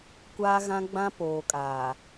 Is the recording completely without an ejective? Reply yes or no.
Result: no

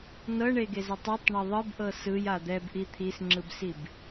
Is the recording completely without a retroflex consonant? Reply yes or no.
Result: no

